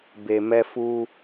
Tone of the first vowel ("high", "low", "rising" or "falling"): low